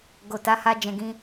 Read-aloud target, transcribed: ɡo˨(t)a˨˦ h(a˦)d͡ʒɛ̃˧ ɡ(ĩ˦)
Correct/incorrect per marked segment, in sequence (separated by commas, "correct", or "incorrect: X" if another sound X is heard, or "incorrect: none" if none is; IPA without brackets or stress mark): correct, correct, correct